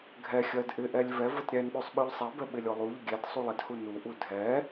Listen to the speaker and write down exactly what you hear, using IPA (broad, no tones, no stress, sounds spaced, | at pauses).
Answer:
ɡʱ ɛ xʲ ɜ d ʔ ɪ ʔ ɛ lʲ v ɛ v ə t ɾʲ ɛ n ɓ ʉ sˤ ɓ ʉ ʎ sˤ ɛ b ɛ ɓ ɪ lʲ o lˠ u ʎ ə ɡʲ ɛ d sˤ u lˠ ɪ d h u n u ʔ u dʱ ɛ